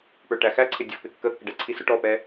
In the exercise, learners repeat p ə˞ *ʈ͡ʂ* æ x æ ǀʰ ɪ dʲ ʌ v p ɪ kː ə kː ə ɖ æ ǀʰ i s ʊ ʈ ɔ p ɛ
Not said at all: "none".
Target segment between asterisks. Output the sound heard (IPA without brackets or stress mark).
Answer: ʈ